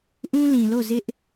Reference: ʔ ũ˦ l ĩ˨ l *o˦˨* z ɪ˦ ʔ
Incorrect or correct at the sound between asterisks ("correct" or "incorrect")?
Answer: correct